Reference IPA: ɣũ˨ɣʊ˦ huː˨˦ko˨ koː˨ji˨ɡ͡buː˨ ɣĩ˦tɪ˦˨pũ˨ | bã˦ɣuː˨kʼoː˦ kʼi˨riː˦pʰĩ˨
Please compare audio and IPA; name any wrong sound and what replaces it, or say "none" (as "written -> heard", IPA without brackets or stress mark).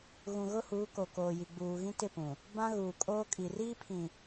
none